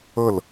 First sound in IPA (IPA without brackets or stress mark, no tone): ɤ